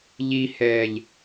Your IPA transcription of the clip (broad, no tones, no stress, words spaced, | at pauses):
ʎihɛːʎ